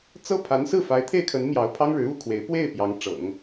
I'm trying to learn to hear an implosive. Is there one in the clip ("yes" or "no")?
no